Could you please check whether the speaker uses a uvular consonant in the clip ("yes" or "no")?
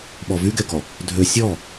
no